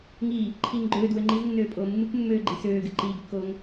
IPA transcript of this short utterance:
ŋ iː | ǃʰ iː ŋ ɡ͡ǃ øː d w ø ŋ͡ǃ i z nː øː pʼ oː mː ɨ k mː øː ɡ͡ǃ i s øː ɡ ɨ ǃ iː ɡ kː oː ŋ

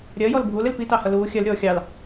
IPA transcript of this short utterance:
ɾʲ ɜ j ɔ l bʱ u l ɪ l p i t ɑ h ʌ l uː xʲ ɜ l ɾʲ ɔː xʲ ɑ l

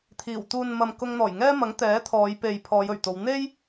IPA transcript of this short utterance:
t̪ʰ iː˨˩ w t̪ uː˨ n m ɐ˨ m k ʊ˧ ŋ n̪ ɔː˨˩ j ŋ ɛː˥ m ɐ˨˥ ŋ t̪ ɛː˨˥ t̪ʰ ɔː˨˧ j p e˨ j pʰ ɔː˨˧ j ɵ˨˩ ɥ t̪ o˨˧ w n̪ e˥ j

